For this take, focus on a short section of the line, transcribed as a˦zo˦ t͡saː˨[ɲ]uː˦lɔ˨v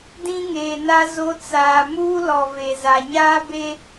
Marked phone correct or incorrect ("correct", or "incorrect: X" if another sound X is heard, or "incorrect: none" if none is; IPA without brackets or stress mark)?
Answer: incorrect: m